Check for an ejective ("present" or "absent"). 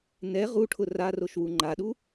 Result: absent